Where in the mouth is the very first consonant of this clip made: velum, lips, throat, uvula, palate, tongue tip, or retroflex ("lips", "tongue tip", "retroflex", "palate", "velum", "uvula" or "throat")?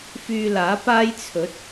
lips